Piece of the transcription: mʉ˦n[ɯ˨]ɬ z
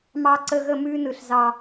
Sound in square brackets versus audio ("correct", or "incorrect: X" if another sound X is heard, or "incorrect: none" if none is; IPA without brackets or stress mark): correct